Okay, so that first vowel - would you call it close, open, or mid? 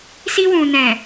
close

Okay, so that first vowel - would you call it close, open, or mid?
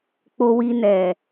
mid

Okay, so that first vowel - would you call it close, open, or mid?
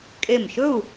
mid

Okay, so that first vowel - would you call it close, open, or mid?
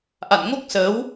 open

